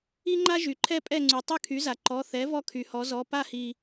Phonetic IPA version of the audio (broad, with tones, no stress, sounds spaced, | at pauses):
i˥ ŋ͡ǃ a˥ ʒ y˩ ǃʰ ɛ˥ pʼ ɛ˥˨ ŋ͡ǀ y˩ tˤ y˥˨ kʰ y˩˥ z a˩ ǃ ɔ˩˧˩ θ ɛ˩˥ v ɔ˥˨ kʰ y˩ h ɔ˩˥ z ɔ˩˧˩ p a˥ h i˩